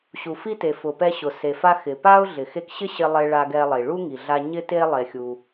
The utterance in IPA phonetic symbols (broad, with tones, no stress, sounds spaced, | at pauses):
ɕ u˩ f i˧ t e˩ f ʊ˩ p ɛ˧ ɕ ʊ˩ s e˩ f a˧ x ɪ˩ p a˧ ʊ̯ ɮ ɪ˩ x e˧ k ɕ ɪ˥ ɕ ɪ˧ lˠ e˧ ɭ a˧ ɡ ɛ˧ lˠ i˩ ɭ u˥ ŋ i˩ ɮ a˧ ɲ ɪ˥ t e˥ lˠ e˧ xʲ u˧